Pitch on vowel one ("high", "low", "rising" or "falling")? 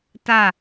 falling